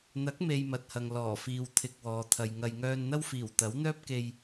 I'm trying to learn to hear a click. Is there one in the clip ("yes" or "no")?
no